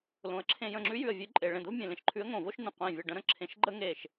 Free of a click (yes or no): no